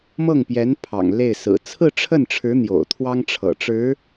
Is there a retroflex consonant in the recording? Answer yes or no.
yes